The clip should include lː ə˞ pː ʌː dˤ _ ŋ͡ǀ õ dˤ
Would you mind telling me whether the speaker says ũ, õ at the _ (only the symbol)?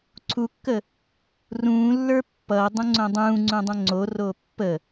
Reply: ũ